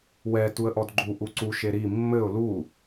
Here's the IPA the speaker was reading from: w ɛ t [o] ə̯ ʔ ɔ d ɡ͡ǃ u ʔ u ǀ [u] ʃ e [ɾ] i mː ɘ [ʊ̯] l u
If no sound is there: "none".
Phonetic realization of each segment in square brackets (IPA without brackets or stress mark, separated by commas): u, u, ɾ, ʊ̯